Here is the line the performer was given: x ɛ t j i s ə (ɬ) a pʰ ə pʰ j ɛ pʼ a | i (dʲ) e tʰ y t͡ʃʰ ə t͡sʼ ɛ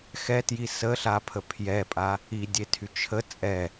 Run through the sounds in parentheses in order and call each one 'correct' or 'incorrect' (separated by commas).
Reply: correct, correct